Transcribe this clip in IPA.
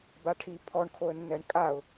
b a ʈʰ i pʰ ɔ ɳ kʰ o ə̯ nː ɛ ɳ kʼ a ʊ̯

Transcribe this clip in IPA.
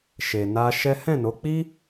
ʃ e˧ n a˦ ʃ ɛ˦ h ɛ̃˦˨ n o˨˦ k͡p i˦

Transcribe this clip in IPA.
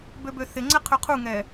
b ø b ø θ ɪ ŋ͡ǀ ɛ qʰ ø qʰ u ŋ ɛ

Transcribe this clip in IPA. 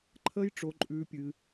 ǃʰ əː˦ j ʈ͡ʂ o˧ ǃʼ ʉː˧ pʲ ɨ˧

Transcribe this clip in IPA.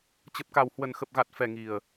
t͡ɕ ə˨˩ p̚ k a˨˩ w h w ə˨˩ n x ə˨˩ p̚ ɣ a˨˩ t̚ f ɛ˨˩ ŋ i˨˩ ə̯

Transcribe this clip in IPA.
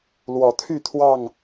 l w ɔ˨˩ t̪ʰ y˥˨ t̪ʰ w ɑ˥˨ ŋ

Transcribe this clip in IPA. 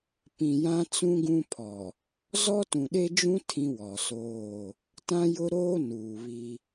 p ĩ˨ j ã˦ t͡s ũ˦ ɡ ũ˦ pʰ ɔ˨ | z ɔ˦ t ũ˨ ɗ e˦ d͡ʒ ũ˦ tʰ ĩ˦ w ɔ˨ s oː˦˨ | t ã˦ j ʊ˦ ɾ oː˦ n uː˨ β i˦

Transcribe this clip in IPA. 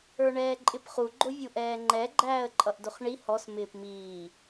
ə˞ ɳ ɛː ǃʼ ɪ p χ u ɡ͡ǃ ʊ vʲ u ʔ ɛː ŋ͡ǃ ɛ ɡ͡ǃ æː ə̯ ǃʼ ʌ ʔ d ʊ χ ɳ i h ɔ s m ɪː p m iː

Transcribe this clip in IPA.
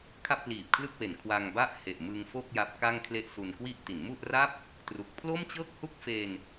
kʰ a˥˩ p̚ l iː˨˩ p̚ kʰ l ɯ˥˩ k̚ w e˨˩ n kʰ w a˧ ŋ b a˥˩ ʔ h e˨˩ ʔ m ɯ˧ ŋ f o˥˩ k̚ j a˦˥ p̚ k a˥˩ ŋ kʰ l e˦˥ ʔ s u˧ n k w i˥˩ ʔ t i˩˦ n m u˥˩ ʔ r a˥˩ p̚ | t r u˨˩ k̚ pʰ l o˥˩ m t͡ɕ ɤː˥˩ k̚ h u˥˩ k̚ f e˧ n

